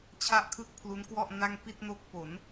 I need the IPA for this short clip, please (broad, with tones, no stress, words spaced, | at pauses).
t͡ɕʰa˥˩ʔkʰɯ˥˩k̚pʰlu˦˥nkwɔ˥˩ʔ na˥˩ŋ pi˥˩t̚no˦˥k̚ po˩˦n